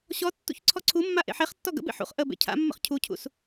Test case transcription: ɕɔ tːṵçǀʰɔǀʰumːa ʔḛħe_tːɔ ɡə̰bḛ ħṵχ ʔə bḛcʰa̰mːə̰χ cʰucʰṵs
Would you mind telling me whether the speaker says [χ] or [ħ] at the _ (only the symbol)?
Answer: χ